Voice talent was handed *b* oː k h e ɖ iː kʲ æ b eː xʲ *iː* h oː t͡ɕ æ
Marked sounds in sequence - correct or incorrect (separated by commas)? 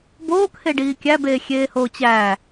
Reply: correct, incorrect